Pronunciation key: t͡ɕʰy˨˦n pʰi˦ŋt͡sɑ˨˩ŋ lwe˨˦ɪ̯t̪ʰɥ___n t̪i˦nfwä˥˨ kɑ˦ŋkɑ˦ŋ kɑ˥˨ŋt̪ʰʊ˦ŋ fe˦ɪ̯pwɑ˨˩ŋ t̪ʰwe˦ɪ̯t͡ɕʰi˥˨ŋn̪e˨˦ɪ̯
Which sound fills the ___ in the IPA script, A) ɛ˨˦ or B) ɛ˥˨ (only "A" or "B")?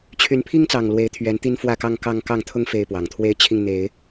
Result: A